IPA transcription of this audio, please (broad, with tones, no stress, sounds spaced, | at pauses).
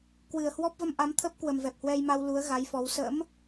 k w ɨ˨˩ ə̯ h w ɔ˦˥ p̚ v ə˧ m ʔ a˨˦ m t̪ʰ ə˦˥ p̚ k w ə˨˩ m v ɛ˨˩ p̚ h w ɛ˧ j m a˧ w l u˨˦ ə̯ ɣ a˨˦ j f ɔ˨˦ w s ə̰˧˥ m